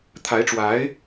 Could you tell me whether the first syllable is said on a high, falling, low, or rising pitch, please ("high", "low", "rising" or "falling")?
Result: rising